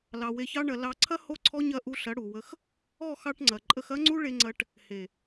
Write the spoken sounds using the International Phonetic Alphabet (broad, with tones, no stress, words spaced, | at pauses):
lɑ˧we˧çɑ˦ɳɐ˧ lɑ˧ǀʰɐ˦ ho˦ǀʰɔ˦ɲɐ˦˨ ʔu˧ɬɐ˨˦ ɽu˨wə˧x | ɔ˦˨xɑ˧ʈŋ͡ǀɐ˨ ǃʼə˧xɐ˦ŋ͡ǀu˦ ɭe˧ŋ͡ǀɐ˧ʈ | he˨